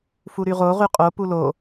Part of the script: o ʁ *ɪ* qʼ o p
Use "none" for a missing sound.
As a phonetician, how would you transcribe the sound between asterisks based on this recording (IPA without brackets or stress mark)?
y